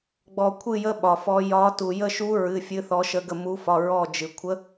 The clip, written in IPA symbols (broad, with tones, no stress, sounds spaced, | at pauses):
ɡ͡b ɔ˧ kʷʰ ɨ˥˧ j ə˦˥ ɓ ɒ˧ f ɔ˦˥ j ɒ˦˥ t u˧ j ə˥˧ ʃ u˦˥ ɹ ɨ˧˥˧ fʲ ɨ˦˥ θ ɔ˦˥ ʃ ə˦˥ ɡ ə˥˧ m u˦˥ f ɒ˧˥˧ ɹ ɔ˥˧ d͡ʒ ɨ˧ kʷʰ ə˦˥